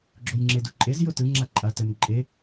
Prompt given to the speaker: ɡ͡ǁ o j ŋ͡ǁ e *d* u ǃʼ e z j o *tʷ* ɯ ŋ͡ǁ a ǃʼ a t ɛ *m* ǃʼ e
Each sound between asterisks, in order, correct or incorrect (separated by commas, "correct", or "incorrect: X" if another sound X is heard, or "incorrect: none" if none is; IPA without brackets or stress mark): correct, incorrect: t, correct